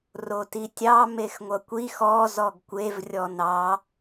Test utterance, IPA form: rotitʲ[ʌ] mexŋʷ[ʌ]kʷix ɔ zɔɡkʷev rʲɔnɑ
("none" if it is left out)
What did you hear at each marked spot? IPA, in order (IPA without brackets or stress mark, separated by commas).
ɑ, ʌ